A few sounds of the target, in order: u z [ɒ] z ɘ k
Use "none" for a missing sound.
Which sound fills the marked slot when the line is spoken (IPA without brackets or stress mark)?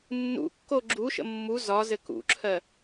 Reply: ɒ